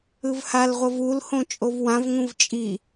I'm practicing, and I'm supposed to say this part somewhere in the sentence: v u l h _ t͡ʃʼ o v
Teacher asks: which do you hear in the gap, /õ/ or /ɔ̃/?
õ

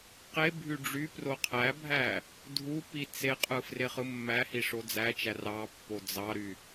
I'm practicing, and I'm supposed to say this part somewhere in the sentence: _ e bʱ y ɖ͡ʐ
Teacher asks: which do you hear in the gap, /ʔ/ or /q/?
q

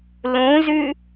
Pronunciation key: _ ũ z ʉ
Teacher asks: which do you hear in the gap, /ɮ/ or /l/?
l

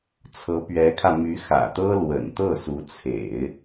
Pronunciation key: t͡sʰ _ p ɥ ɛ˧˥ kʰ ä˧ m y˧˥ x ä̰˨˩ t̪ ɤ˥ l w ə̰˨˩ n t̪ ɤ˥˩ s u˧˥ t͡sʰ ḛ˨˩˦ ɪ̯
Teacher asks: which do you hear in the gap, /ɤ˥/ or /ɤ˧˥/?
ɤ˧˥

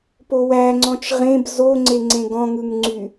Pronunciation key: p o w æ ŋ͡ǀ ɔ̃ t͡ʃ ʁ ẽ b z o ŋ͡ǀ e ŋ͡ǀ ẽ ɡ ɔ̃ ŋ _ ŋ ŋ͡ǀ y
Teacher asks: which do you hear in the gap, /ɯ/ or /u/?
ɯ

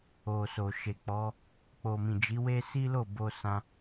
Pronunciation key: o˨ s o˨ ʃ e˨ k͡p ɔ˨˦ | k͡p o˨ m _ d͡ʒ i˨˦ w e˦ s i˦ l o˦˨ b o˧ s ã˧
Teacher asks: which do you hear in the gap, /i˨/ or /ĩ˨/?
ĩ˨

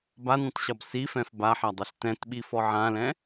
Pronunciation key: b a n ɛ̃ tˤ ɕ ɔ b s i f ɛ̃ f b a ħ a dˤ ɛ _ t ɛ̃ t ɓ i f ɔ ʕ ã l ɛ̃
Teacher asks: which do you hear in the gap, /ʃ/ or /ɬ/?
ɬ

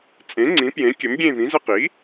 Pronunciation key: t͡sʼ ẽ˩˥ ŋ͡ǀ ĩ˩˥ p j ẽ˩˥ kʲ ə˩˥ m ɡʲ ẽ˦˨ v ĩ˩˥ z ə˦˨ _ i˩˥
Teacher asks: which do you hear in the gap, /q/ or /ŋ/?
q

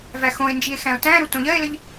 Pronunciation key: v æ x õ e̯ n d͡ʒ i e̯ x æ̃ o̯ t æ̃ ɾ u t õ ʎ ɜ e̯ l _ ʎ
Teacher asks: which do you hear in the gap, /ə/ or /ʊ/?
ə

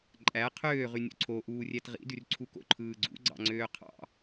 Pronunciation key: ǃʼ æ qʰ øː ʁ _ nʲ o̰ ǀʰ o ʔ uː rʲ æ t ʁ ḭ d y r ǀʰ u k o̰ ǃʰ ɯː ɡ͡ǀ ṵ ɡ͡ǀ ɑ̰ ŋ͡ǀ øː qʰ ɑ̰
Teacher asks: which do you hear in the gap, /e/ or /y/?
y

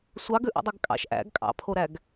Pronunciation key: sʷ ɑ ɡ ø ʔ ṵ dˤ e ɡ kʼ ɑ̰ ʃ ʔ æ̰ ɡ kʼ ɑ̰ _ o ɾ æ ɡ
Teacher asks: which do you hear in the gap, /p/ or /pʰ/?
pʰ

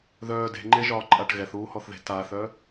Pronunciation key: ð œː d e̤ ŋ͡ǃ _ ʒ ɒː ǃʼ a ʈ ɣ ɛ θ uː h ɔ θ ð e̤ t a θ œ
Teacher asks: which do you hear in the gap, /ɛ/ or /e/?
e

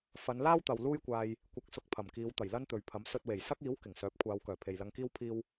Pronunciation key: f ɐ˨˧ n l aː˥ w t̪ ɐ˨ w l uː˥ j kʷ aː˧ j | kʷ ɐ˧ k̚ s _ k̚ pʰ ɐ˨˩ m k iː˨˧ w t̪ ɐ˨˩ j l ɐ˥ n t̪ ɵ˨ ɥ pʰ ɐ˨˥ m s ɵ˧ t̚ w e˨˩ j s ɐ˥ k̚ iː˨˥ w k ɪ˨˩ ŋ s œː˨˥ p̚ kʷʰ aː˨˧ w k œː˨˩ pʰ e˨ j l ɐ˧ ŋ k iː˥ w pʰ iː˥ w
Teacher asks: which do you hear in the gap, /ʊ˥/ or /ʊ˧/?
ʊ˧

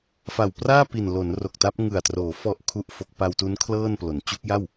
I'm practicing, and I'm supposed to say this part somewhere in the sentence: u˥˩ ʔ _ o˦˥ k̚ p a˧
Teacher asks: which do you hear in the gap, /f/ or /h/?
f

